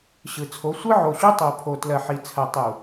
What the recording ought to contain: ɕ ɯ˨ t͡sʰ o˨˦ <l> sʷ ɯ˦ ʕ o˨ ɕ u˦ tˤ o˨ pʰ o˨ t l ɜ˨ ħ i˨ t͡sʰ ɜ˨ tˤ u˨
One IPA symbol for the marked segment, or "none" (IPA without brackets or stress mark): none